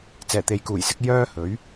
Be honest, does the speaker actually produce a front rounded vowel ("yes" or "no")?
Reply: yes